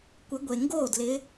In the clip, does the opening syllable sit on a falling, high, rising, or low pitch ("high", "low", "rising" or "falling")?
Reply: rising